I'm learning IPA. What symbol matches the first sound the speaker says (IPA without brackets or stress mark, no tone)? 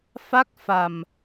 f